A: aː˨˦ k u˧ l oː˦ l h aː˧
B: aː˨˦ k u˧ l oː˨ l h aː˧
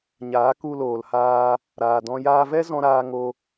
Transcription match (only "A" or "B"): B